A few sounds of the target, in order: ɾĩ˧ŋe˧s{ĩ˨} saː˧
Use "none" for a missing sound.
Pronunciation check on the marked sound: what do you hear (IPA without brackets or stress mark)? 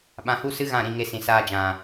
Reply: ĩ˨